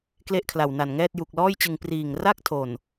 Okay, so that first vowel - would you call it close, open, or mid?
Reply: mid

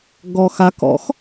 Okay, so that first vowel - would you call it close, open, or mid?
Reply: mid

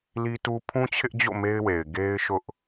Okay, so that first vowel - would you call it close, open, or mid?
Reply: close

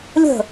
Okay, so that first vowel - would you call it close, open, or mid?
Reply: mid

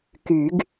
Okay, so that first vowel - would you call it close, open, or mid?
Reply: close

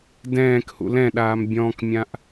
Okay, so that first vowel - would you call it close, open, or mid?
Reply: mid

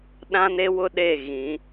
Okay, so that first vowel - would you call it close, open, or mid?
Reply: open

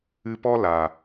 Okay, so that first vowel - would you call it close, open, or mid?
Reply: close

